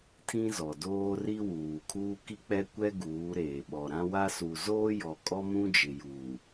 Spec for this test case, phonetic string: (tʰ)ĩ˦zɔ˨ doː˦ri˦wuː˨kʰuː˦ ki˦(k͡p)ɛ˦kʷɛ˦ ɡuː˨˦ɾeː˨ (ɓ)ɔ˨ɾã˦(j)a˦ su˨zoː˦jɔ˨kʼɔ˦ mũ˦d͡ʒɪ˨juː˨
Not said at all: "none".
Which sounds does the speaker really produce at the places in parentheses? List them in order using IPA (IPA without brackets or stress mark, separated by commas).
tʰ, k͡p, ɓ, w